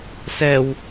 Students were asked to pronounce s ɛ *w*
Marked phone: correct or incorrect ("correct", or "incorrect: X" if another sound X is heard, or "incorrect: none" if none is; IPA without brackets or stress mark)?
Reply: correct